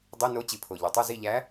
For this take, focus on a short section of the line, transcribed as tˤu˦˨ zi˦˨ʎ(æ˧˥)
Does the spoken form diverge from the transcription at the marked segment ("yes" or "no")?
no